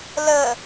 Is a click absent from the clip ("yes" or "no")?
yes